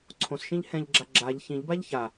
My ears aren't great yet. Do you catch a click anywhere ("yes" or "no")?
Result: yes